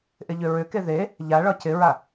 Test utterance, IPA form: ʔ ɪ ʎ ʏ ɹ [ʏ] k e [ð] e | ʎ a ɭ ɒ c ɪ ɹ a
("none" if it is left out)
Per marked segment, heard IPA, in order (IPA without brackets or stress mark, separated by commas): ʏ, ð